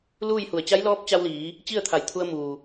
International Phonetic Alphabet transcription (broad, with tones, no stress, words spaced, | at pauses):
luː˥˨jhu˧˩ə̯ t͡ɕa˧˥jlɔː˧˥p̚t͡ɕa˧wliː˩˧ | t͡ɕi˥˨ə̯t̪ʰa˧˩jt̪ʰu˧ə̯ muː˩